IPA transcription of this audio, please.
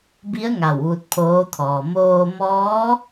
bi˧˥ə̯ ŋa˧˩wʋu˧t̚pʰoː˧˥t̪ʰɔː˩ moː˧mɔː˧˥

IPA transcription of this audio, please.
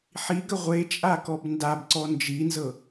ħiɡə ʁʷet͡ʃʼakɔb ndabǀɔ nd͡ʒinzɤ

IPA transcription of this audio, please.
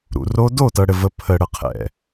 ɾṵ˨ro˦ do˦˨tɤ˨ɽɘ˨və˨ pʰə˨ɽə˨qʰɛ̰˨

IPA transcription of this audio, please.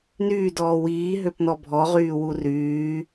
nyːdɔː wiːɦøpnɔ bʱɔʁyːwu ryː

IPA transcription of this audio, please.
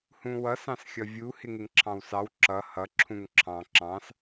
hũwʌs ɑ̃sxʲʌvʲu hɪŋɪŋǁʰɑ̃wsɑw ǁʌ hʌ ǁʰũŋǁʰɑ̃ ǁɑ̃s

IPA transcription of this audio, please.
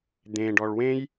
d̪ẽɖɔɭ wẽj

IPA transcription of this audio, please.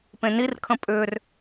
pẽnirkʰə̃ pʼʏr

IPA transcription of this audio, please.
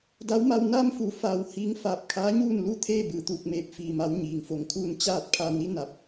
da˧˥wma˧w na˧mfu˩˧faː˩w hiː˧˥ŋ faː˧˩p̚kʰaː˧˥ɲuː˥˨n lu˥˨t̪ʰeː˥˨ bɯː˩t̪uː˧˩k̚meː˧˩p̚ fiː˩ma˩˧w ɲiː˩ŋfo˧˩ŋkʰuː˥˨n t͡ɕaː˥˨t̚pʰa˧ ni˧˥na˧˩p̚

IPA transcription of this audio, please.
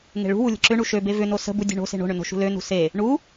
ŋe̤ɭṳwu lʲə̤ǁʏɳu ʃøbe vʏno sə̤bu dʲo̤ɳo̤se̤ ɳo̤ɳʏ no̤ʃṳlønṳ se | ɳu

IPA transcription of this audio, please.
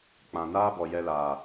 k͡pã˨naː˦bɔ˨ jɛ˧laː˨

